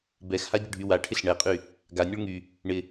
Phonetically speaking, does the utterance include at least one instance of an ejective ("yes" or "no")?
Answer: yes